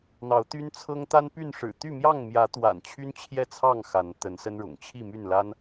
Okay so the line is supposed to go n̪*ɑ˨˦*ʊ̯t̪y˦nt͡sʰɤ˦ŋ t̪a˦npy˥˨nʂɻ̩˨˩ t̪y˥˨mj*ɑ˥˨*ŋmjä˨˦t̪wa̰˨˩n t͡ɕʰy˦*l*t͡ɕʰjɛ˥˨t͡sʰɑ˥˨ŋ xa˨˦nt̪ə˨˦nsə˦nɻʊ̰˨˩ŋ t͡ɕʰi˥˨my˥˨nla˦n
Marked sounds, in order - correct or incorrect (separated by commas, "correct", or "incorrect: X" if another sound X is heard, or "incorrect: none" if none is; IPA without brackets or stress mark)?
correct, correct, incorrect: n